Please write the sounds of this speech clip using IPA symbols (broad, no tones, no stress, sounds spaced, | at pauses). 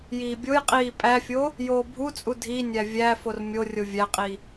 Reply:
j iː bʲ o j qʼ iː pʼ æ fʲ o | j oː bʱ u t͡sʼ u dʱ i nʲ æ vʲ æ f o r mʲ o rʲ o vʲ æ qʼ i